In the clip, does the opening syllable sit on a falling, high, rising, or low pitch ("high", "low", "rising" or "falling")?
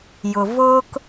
low